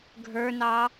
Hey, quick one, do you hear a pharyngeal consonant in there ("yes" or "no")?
no